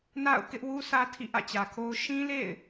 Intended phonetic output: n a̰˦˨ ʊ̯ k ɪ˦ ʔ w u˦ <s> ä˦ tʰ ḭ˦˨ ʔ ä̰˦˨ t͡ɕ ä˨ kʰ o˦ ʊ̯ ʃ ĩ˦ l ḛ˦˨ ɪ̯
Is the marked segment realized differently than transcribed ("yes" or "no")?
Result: no